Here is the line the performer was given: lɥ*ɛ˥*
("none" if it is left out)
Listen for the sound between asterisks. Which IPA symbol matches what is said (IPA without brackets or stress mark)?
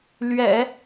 ɛ̰˨˩˦